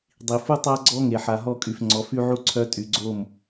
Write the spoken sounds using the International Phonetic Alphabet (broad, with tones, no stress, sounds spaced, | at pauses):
dˤ i˨ f u˦ tˤ a˦ ɡ͡ǀ ɔ˦ ŋ e˨ ħ a˨ ɦ ɔ˦˨ kʼ y˨ f ŋ͡ǀ ɔ˨ f y˦ ʕ u˦ ǀʰ œ˦ tʼ y˨ ɡ͡ǀ o˦˨ m